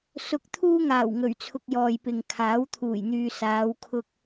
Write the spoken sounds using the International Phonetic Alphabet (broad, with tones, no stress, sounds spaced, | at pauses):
s ʊ˨˥ k̚ t̪ʰ uː˧ ŋ aː˨˩ w ŋ ɵ˨˩ ɥ t͡sʰ ʊ˨ k̚ j ɔː˨ j p ɪ˨ ŋ kʰ aː˨˥ w t̪ʰ uː˨˩ j n̪ yː˨ s aː˨˧ w kʰ ʊ˧ k̚